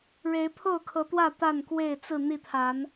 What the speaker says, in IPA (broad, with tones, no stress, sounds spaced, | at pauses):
ɻ e˨˦ ɪ̯ pʰ o˥˨ ʊ̯ kʰ ɤ˨˦ t̪ w ä˥˨ t̪ a˥˨ n k w e˥˨ ɪ̯ t͡s ɹ̩˥˨ n̪ i˥˨ t̪ʰ a˨˦ n